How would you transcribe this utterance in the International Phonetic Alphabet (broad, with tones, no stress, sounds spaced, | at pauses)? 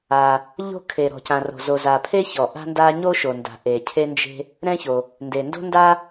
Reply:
a˩ | ʎ o̤˥ kʰ e˩ ɾ ɔ̤˩ c ã˩ r o̤˩ z o˩ z a˩ pʰ e˥ ç ɔ˩ ʔ a̤˥ n d a˥ ɲ o˥ ʃ o˩ n d a̤˩ ʔ e˩ cʰ e˥ n d͡ʒ e̤˥ | ɾ ɛ̃˥ ç o˩ | n d e˩ n d o̤˥ n d a˥